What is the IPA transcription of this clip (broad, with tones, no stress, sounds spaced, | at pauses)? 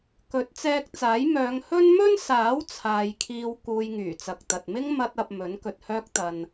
k ɵ˨˥ t̚ t͡s ɛː˧ k̚ t͡s aː˨˥ j m œː˨˧ ŋ h ɵ˥ n m ɵ˥ n s aː˨˥ w t͡sʰ aː˨ j kʰ iː˧ w k uː˧ j ŋ yː˨˩ t͡s ɐ˨ k̚ t̪ ɐ˨ t̚ m ɪ˥ ŋ m ɐ˧ t̚ ɐ˨ p̚ m ɵ˨˥ n k ɵ˨ t̚ h œː˥ k̚ t̪ ɐ˧ n